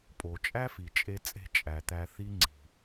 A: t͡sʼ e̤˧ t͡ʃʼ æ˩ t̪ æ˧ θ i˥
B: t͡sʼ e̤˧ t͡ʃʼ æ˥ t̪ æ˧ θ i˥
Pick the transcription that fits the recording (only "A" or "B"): A